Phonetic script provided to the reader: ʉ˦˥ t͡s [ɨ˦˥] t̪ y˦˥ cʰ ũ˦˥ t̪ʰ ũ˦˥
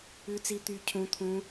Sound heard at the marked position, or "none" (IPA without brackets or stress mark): i˦˥